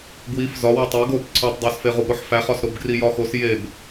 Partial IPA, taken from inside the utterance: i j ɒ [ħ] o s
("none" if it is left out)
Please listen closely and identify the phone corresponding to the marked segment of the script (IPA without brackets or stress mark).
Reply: x